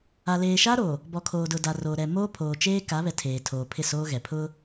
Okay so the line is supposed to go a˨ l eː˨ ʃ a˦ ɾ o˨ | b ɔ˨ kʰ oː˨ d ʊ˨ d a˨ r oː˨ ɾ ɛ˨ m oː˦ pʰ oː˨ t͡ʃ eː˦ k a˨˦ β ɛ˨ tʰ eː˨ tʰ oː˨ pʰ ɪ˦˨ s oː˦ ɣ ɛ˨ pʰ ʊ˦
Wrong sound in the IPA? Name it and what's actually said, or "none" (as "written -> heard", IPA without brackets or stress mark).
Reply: none